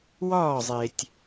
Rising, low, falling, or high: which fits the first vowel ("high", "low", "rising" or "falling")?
falling